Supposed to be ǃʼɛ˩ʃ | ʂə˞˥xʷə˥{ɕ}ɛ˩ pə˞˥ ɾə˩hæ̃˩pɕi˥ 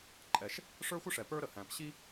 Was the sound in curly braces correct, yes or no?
no